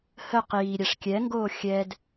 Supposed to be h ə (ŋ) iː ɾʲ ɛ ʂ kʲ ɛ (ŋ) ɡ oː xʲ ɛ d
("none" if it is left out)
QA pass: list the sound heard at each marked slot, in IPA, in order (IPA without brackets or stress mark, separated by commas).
q, ŋ